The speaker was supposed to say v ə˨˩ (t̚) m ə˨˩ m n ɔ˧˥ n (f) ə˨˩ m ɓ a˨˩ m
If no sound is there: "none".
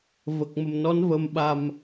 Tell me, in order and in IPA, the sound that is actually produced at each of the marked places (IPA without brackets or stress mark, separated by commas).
k̚, v